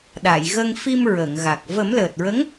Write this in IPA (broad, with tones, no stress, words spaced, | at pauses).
ɗa˨˩˨jɣə˧ŋfi˧m ɹə˨˩˨ŋɣa˨˩k̚ və˨˩˦mləː˨˩t̚ɹə˧˥ŋ